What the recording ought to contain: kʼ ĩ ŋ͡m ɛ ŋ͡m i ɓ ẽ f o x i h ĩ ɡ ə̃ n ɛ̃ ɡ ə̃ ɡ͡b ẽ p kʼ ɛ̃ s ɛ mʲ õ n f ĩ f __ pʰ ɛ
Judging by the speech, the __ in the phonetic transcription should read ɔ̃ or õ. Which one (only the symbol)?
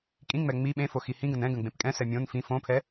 õ